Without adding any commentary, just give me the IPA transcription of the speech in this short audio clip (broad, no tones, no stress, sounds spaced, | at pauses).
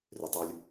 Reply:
r y tˤ u lʲ